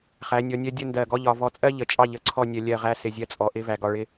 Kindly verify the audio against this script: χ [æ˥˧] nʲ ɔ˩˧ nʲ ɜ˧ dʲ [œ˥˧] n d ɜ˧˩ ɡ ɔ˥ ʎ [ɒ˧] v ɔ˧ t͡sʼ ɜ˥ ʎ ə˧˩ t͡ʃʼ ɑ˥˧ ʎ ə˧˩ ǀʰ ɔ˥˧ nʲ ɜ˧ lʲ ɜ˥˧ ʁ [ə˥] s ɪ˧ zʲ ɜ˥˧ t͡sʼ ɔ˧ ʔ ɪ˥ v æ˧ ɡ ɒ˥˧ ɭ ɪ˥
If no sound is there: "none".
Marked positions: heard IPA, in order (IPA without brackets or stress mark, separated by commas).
æ˩˧, ə˥˧, ɒ˧, æ˥